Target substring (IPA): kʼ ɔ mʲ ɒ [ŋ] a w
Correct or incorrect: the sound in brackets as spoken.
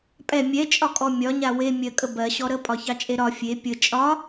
incorrect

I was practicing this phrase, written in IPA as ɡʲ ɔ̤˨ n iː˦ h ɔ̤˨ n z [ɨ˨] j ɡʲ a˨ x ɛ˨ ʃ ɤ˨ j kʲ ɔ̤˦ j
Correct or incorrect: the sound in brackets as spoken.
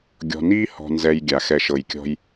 incorrect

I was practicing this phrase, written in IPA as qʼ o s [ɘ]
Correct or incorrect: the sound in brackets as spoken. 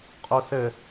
correct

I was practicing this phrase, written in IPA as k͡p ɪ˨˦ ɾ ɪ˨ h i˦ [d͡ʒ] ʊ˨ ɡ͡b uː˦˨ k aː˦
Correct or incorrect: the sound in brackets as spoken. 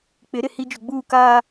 correct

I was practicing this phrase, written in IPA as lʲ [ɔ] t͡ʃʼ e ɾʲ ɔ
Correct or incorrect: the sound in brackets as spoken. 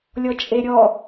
correct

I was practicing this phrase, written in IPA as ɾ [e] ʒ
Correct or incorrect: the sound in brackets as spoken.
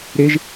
correct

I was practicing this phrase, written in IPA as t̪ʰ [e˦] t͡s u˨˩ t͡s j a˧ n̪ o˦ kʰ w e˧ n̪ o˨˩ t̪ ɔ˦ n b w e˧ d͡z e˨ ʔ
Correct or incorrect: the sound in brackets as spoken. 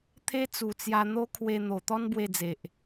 correct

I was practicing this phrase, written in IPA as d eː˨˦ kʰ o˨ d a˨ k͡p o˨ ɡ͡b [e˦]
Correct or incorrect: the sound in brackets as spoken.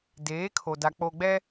incorrect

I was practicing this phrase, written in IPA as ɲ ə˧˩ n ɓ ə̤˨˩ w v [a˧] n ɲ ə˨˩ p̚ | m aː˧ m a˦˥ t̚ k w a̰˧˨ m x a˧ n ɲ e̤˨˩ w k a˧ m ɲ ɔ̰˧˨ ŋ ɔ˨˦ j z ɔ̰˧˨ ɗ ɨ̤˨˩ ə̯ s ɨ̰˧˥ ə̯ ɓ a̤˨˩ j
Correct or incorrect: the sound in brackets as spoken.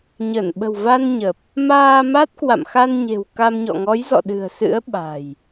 correct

